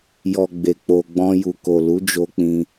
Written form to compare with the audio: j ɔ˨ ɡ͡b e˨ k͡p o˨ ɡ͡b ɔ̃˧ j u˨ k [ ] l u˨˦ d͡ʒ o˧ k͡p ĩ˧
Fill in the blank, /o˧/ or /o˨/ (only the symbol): o˨